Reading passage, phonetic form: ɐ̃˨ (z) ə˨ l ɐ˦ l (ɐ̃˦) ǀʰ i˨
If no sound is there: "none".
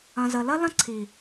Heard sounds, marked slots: z, ɐ̃˦

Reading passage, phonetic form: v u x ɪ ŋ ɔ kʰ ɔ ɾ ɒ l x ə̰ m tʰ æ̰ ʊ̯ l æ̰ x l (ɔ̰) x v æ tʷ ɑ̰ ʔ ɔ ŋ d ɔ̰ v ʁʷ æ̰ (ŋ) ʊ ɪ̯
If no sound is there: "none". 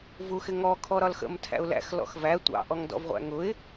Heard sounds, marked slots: ɔ̰, ŋ

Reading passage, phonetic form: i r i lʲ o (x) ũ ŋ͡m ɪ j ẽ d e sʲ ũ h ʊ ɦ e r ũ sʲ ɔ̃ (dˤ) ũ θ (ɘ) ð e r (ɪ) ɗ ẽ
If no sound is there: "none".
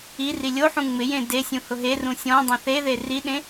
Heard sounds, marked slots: ħ, dˤ, e, i

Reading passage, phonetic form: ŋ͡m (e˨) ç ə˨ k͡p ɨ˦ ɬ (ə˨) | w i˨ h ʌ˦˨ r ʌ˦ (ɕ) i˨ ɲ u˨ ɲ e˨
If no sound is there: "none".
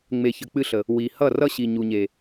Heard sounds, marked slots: e˨, ə˨, ɕ

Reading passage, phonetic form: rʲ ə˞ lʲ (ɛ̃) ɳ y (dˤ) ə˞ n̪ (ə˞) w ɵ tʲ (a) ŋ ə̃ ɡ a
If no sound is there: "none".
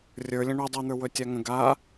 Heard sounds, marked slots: ə̃, dˤ, ə˞, a

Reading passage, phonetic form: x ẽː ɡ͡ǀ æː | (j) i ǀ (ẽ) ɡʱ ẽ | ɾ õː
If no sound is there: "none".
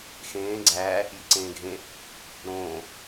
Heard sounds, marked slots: j, ẽː

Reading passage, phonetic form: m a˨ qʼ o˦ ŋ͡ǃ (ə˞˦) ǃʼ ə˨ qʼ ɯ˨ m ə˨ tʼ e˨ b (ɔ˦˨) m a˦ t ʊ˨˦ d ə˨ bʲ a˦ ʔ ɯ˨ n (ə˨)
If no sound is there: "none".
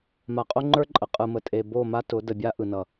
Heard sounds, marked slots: ə˞˦, o˦˨, ʌ˨

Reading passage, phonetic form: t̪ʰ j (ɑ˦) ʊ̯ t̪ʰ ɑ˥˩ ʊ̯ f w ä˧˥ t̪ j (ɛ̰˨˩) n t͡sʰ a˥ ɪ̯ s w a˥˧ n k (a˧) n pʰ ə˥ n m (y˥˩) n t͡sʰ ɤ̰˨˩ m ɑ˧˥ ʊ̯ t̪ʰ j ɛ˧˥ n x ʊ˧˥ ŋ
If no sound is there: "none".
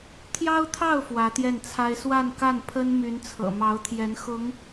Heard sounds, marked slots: ɑ˥, ɛ˥˩, a˥˩, y˧˥

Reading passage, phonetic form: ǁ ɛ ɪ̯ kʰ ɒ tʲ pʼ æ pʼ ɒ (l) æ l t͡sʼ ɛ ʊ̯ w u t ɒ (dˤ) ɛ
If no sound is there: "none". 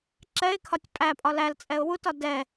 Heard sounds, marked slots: l, d

